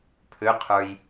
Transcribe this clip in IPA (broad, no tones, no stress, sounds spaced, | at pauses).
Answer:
pʰ ʏ qʰ ə˞ j